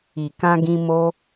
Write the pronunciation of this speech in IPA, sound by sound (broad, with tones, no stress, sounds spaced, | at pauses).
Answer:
i˨ k ã˧ ɡ ĩ˧ m o˦